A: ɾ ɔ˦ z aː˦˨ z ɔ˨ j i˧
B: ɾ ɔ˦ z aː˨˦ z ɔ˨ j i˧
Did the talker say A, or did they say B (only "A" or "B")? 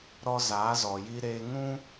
B